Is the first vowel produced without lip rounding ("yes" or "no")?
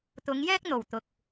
no